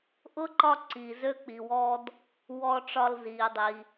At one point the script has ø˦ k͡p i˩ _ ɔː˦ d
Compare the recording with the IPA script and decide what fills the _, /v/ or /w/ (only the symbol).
w